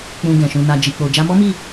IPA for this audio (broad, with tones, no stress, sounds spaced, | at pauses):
k͡p ũ˨ ɡ ɛ̃˨ ʃ ũ˧ n a˧ d͡ʒ i˨ k͡p o˨ d͡ʒ a˧ m ɔ˦ m i˦˨